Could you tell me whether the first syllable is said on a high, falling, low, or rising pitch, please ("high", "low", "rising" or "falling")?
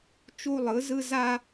high